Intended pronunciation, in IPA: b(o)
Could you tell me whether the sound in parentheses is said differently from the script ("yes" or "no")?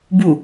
yes